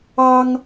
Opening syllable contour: high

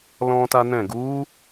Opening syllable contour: high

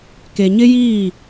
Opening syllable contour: low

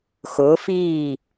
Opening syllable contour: rising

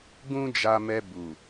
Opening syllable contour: high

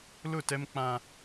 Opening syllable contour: falling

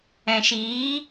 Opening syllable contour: low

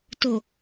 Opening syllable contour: low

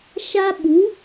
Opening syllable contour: high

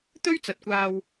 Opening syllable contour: high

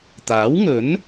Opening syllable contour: rising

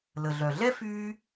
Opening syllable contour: low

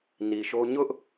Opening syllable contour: low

